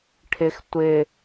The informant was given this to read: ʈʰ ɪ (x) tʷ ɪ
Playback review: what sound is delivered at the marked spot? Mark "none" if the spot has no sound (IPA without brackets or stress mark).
x